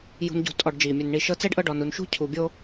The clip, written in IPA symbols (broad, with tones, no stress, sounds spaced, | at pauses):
j ṳ˨ n ɟ ṳ˨ tʼ ɔ˨ ɖ d͡ʒ iː˩ mʲ ɛ˨ n ɳ i˨ ʃ ɤ˦ t͡s ɛ˥ ɖ ʔ ɤ˦ ɖ ɔ˨ n u˨ n ʃ ṳ˥ cʰ u˨ bʲ o˦